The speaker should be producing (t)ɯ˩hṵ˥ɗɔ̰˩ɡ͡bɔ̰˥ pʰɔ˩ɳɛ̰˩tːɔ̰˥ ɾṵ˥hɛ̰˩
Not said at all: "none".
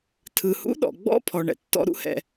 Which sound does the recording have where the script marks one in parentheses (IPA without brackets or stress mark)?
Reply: tʰ